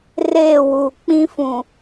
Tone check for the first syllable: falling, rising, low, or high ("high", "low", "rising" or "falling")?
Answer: falling